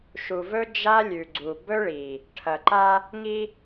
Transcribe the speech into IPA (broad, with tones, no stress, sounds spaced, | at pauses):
ʃ u˨ v ɵ˦ d͡ʒ a˦ lʲ ʉ˨ ɡ͡ǀ u˨ b ɵ˦ ɭ i˨ | ʈʰ ɐ˨ ǃ a˦ | ŋ i˦